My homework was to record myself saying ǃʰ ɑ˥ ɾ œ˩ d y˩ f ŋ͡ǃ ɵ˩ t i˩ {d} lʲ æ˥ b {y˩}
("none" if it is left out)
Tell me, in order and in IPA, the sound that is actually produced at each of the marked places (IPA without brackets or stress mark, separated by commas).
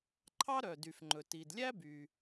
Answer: d, y˩